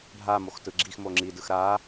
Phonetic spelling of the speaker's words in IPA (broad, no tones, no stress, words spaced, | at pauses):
ɖʱamox tɯɡ͡ǁixmo ŋ͡ǁidɯx ɾa